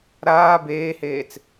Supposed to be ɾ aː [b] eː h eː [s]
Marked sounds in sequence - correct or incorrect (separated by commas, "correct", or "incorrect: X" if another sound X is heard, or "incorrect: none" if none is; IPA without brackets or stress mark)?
correct, incorrect: t͡s